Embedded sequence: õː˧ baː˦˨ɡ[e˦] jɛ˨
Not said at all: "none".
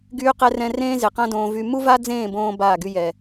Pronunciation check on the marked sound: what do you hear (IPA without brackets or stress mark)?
y˦